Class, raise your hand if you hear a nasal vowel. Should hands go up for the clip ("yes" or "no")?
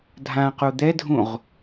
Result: yes